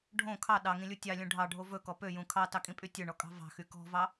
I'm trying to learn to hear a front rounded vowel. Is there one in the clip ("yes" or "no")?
yes